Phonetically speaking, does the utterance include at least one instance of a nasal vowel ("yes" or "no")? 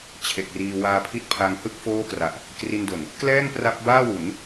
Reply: no